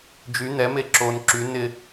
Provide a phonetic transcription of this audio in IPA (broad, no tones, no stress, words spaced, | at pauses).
d͡ʒy n̪ɛme ǁon ǁy nɪ